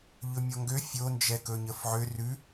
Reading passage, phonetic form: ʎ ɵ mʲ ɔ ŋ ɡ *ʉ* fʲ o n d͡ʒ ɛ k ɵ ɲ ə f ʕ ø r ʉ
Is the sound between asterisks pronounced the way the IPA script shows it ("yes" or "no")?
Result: no